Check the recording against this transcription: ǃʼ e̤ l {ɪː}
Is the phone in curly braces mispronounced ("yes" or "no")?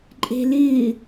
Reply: no